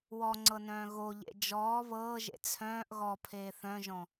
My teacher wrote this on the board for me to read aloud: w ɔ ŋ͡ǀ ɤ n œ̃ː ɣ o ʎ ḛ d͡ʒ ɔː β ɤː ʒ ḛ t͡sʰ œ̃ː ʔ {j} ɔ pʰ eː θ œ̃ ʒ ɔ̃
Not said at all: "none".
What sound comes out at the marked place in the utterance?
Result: ɣ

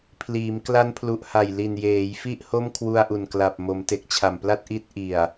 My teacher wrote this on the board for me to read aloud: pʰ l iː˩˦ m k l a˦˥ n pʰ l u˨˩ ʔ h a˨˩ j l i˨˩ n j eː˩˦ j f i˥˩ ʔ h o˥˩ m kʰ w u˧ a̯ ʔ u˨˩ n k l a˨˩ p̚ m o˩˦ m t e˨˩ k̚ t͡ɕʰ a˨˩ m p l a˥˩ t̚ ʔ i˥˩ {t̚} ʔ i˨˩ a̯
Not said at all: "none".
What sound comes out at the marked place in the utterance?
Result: t̚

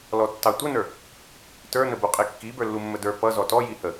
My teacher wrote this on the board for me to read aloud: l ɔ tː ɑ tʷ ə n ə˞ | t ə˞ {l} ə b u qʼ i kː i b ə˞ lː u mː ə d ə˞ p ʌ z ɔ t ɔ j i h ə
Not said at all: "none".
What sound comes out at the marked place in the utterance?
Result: n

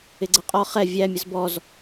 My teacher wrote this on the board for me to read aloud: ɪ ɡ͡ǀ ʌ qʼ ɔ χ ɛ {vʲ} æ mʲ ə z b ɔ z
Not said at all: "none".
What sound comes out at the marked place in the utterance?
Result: vʲ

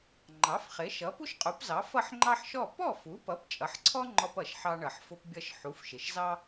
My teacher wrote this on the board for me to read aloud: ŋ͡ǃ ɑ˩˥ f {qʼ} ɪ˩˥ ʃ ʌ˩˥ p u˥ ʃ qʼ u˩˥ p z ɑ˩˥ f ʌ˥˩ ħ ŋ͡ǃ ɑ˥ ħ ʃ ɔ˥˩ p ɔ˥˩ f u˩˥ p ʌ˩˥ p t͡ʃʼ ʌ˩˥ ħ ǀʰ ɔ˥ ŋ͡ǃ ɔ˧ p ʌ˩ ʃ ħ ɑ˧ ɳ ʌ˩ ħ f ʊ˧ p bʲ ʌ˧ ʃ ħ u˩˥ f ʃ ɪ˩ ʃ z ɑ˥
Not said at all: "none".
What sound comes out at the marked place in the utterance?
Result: χ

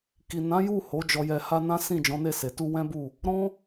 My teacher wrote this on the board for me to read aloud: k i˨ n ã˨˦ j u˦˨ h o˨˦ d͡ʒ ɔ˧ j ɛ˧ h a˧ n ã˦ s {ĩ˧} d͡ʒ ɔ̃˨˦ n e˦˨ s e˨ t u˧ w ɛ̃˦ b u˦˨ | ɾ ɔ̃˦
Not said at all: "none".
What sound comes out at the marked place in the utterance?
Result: ĩ˦˨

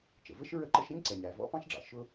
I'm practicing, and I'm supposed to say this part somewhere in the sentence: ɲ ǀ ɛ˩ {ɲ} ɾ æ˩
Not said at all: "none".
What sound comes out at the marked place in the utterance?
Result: ɲ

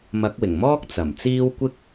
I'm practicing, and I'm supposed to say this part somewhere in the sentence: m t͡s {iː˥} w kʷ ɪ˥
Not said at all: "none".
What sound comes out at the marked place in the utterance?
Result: iː˥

